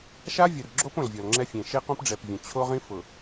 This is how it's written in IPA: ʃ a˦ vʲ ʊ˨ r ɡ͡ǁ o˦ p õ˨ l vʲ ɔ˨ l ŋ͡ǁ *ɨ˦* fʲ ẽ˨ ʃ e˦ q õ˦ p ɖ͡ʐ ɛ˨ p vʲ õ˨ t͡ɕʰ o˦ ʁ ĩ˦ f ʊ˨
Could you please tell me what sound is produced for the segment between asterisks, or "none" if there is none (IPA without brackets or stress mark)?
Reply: ɛ˦